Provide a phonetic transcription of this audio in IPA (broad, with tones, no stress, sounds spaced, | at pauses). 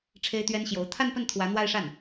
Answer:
ʈ͡ʂʰ e˥ ɪ̯ t̪ ɥ ɛ˥ n ɕ j o˧˥ ʊ̯ t̪ʰ a˥˧ n p ə˥˩ n t̪ʰ w ä˧˥ n̪ w a˥˧ ɪ̯ ʂ a˥˩ n